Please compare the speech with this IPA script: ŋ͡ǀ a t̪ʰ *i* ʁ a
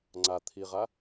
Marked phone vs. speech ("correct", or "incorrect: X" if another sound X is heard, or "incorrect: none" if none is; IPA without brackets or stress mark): correct